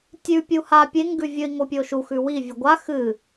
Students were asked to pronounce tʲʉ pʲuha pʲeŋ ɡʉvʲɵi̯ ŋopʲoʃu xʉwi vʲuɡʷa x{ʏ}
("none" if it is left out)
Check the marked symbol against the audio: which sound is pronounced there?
ɨ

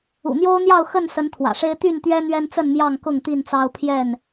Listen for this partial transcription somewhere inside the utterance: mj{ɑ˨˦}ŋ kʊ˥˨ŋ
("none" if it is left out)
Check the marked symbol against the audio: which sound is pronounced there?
ɑ˥˨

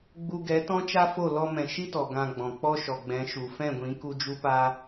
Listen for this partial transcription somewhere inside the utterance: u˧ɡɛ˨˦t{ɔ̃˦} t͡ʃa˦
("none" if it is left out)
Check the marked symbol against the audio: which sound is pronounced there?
ɔ̃˦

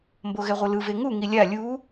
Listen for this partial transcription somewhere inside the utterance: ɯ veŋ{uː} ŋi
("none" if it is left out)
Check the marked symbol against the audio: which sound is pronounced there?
u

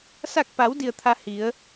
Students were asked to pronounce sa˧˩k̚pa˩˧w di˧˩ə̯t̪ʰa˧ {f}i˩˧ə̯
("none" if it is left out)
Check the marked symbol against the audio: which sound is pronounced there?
h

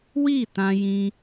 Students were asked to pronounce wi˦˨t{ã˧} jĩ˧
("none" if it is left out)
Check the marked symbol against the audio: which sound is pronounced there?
ã˧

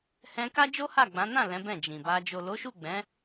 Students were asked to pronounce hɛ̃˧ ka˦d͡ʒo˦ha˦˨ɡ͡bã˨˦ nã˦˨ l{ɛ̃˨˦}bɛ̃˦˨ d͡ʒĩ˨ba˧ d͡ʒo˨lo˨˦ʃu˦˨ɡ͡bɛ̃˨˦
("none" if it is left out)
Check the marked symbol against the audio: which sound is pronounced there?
ɛ̃˨˦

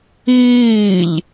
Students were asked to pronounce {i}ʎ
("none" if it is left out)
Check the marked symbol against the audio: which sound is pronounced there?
iː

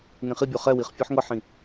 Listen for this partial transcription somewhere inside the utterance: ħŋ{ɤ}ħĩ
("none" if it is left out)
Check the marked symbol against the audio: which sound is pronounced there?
ɤ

